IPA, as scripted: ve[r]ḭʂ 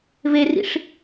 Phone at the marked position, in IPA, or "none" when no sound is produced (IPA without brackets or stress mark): r